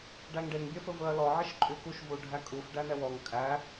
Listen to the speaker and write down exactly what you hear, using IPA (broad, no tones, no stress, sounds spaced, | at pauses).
ɖ æ ŋ ɖ e ŋ bʲ œ f ɵ v ɵ ɐ̯ l ɔ ʕ e ʃ ǃʼ y k u ʃ v u ɖʱ æ kʼ u f ɖ æ n ɛ w ɔ ŋ kʼ æ